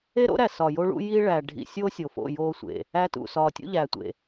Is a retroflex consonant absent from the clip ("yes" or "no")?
no